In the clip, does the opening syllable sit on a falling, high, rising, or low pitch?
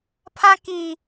high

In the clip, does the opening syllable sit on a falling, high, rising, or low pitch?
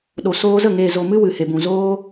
low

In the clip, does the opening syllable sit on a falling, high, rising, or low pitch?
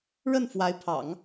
falling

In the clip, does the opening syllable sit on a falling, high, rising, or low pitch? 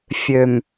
low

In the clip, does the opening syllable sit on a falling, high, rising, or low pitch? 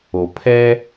low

